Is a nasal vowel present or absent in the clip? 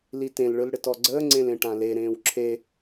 present